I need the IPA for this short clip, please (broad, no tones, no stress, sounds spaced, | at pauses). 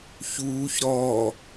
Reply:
ç uː ç ɾ ɔ